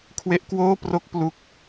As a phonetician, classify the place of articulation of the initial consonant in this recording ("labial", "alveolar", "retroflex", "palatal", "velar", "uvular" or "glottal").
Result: velar